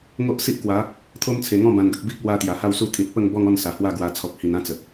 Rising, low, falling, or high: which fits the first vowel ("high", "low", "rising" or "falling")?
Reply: high